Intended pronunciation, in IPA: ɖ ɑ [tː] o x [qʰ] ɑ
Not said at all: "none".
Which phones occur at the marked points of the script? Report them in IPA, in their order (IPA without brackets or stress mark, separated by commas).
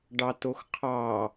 t, qʰ